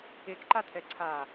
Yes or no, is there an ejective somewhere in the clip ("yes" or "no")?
no